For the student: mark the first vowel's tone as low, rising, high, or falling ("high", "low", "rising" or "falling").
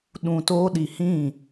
low